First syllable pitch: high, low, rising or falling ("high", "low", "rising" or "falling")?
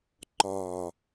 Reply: low